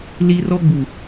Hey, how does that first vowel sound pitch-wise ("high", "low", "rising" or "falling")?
high